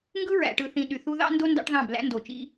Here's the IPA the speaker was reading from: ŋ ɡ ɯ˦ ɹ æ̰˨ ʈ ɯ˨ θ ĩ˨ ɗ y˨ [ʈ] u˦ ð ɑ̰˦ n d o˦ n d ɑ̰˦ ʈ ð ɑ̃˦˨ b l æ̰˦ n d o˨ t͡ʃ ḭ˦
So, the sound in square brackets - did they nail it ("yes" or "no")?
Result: no